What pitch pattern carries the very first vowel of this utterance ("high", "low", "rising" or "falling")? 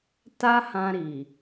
high